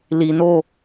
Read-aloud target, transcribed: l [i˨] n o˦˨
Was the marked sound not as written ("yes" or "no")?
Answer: no